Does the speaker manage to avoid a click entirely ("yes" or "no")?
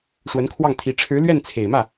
yes